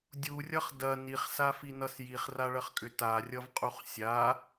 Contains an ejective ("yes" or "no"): yes